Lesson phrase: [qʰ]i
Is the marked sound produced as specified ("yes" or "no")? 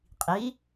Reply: no